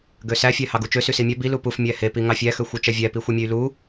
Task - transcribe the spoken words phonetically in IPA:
ɡ ø s æ fʲ æ h ɑ ɡ u t͡ʃ ø s y s i mʲ æ b i l u p u f mʲ æ h e p i ŋ ɑ fʲ æ x ø xʷ i t͡ʃ æ vʲ æ p i xʷ i mʲ e y̯ l u

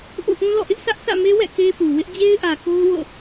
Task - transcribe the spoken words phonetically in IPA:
ʔ ṵ˦˨ ʔ ũ˦ l ɔ̰˦˨ ʔ ɪ˦ ʔ sʰ ä˦ ʔ θ ä̰˦˨ m e˦ w ɛ̰˦˨ k e˦ p u˨ w ɪ˦ ʔ d͡ʑ e˦ ɪ̯ ʔ ä˨ k o˦ ʊ̯ w o̰˦˨

